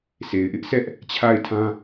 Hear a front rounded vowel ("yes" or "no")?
no